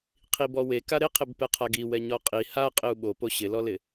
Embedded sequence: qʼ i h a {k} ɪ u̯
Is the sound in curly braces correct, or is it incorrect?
incorrect